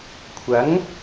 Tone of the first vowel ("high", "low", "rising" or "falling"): rising